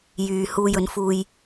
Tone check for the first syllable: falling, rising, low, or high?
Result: low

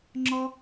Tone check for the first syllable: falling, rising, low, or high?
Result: high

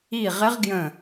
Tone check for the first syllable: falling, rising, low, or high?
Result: falling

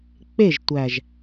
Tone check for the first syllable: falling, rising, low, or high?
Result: falling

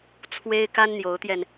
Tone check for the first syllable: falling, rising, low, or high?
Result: high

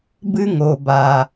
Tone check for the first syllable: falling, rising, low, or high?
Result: high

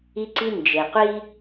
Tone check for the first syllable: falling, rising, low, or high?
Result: high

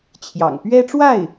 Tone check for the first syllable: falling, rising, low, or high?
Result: low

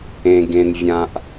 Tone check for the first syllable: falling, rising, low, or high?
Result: low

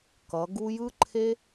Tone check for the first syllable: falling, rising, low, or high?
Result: rising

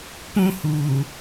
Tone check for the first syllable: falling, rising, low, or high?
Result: high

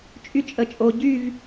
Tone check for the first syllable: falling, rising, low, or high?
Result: high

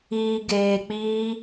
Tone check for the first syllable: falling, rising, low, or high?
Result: low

